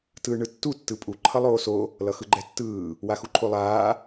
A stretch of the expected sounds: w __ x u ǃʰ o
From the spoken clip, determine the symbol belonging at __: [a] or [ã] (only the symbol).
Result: a